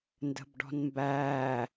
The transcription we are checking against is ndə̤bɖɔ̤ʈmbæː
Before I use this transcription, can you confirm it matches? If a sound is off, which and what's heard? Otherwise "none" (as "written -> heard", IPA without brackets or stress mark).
ʈ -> n